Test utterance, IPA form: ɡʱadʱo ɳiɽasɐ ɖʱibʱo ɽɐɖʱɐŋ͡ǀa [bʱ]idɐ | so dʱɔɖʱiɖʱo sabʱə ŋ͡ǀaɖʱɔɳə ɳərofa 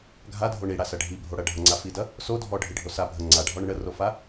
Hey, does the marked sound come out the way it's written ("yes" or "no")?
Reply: no